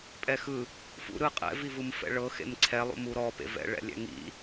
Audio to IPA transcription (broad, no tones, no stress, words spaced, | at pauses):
pʼɛxɯ | fṵ ɾɯqʼɛ̰ vivɯmfɛ̰ɭɤ xḛmǀʰɛ lˠṵmuɾɔ pḛvɛ̰ ɭɛ̰lʲɛ̰ŋḭ